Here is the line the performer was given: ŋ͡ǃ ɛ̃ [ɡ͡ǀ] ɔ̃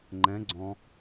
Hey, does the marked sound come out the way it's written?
yes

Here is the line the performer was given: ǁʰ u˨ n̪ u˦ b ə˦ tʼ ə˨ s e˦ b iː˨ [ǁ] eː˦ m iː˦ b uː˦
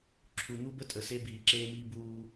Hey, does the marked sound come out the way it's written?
yes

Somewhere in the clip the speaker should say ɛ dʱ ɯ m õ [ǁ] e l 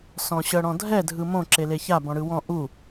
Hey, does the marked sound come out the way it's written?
yes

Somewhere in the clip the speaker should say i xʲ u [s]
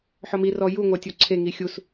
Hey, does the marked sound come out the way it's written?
yes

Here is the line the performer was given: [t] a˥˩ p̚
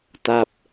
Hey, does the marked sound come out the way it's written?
yes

